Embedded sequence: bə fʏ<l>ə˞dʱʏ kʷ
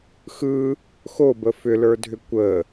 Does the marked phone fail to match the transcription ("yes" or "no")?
no